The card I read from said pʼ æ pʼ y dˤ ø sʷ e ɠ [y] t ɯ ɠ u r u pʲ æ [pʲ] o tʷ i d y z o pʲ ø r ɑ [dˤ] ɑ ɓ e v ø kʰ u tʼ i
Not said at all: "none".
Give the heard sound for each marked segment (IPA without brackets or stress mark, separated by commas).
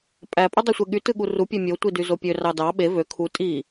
y, mʲ, d